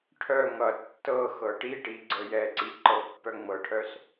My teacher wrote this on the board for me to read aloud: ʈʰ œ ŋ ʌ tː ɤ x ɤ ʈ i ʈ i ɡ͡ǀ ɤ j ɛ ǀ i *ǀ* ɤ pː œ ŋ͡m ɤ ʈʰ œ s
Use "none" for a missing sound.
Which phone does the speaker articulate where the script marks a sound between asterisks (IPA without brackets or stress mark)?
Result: ǃ